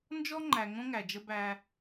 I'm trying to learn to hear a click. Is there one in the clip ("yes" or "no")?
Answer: yes